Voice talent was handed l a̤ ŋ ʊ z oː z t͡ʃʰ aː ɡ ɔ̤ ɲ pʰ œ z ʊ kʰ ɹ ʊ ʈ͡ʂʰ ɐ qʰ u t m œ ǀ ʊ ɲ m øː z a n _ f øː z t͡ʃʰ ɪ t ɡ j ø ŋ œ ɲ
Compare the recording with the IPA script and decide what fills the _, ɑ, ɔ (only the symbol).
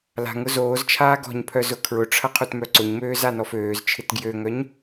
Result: ɔ